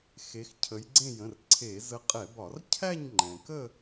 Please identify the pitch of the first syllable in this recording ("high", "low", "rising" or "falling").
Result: rising